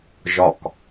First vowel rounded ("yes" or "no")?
yes